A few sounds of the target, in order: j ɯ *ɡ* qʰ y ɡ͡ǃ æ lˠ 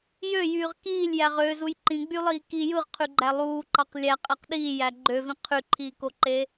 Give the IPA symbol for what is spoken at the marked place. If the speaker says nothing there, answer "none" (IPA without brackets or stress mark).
ʁ